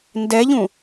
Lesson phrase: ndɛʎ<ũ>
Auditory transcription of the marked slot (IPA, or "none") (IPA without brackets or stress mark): ũ